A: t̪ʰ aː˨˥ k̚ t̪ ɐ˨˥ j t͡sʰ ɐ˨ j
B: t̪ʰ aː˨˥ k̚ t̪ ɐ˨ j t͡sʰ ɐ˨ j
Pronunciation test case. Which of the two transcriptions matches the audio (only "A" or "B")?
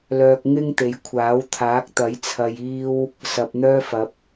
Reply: A